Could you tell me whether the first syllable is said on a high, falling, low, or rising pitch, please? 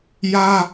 high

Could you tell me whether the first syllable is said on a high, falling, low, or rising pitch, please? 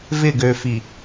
falling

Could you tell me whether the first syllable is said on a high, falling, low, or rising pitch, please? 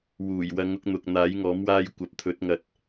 low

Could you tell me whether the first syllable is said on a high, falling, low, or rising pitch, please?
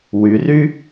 rising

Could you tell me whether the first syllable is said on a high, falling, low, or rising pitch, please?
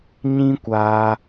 high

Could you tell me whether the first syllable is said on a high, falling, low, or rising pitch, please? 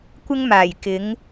high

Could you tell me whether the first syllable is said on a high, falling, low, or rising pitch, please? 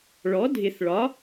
rising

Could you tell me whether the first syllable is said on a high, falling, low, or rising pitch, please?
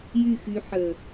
falling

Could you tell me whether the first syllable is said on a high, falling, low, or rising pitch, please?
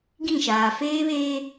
falling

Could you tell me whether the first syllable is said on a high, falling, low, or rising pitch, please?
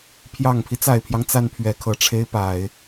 low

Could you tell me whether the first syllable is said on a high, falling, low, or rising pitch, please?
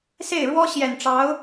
falling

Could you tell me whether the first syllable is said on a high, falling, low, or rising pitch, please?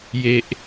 high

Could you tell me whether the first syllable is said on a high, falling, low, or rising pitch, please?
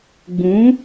rising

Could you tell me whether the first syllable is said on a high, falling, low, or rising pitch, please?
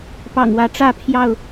low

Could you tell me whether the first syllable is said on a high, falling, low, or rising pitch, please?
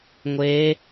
rising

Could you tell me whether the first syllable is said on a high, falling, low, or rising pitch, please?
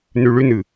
low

